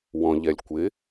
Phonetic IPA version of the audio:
wɔ̃ʎɛlʲ kʷɪ

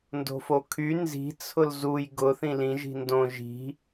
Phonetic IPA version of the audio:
ndo̤fokʰy nzi̤ t͡sʰʊlzuj ɡʊ θĩlĩ ʒi̤ndõ ʒi̤

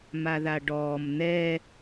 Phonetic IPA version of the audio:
maðaɖɔːm n̪ɛ

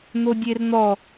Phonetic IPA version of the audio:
n̪odʲern̪ɔ

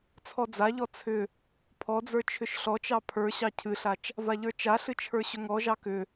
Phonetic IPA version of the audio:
t͡sʰɔd͡zaʎɔ t͡sʰʏ | pʰɔd͡zə˞ t͡ʃʰʏʃɬɔt͡ʃɑ pʰə˞ ɕɑcʰɨɬat͡ʃ | vaʎə˞t͡ʃaɬɨ t͡ʃʰə˞ɕʏŋɔʒɑ kʏ

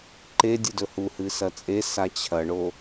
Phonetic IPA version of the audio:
ǃedʲɨ dɵhuhɨ sɐt͡sʼesa t͡ɕʰɐɳo

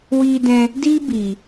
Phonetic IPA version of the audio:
wiː˧dɛ̃˧ | diː˦biː˨

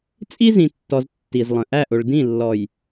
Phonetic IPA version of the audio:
t͡sʼi˦zĩ˨tːɔ˨z tːi˨zlˠə̃˨ ʔæ˦˨ʔʊ˨ɭ dĩ˦˨lːɔ˨j

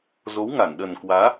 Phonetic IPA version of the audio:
zo˨˦wŋa˧˩nɗə˨˩nkwaː˨˦

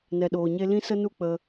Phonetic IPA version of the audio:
nɛ˨ɗoː˨ɲe˧ lĩ˦sə˦ nu˦k͡pə˧

